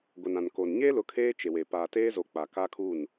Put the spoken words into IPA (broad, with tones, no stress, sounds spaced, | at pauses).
ɡʷ ɛ˨ n ã˨ n k o˨ n ɲ eː˦ l ʊ˨˦ kʰ eː˦ t͡ʃ e˨ w e˨ p aː˨ t eː˦ z o˨ k͡p a˨ k a˦ kʰ u˦˨ n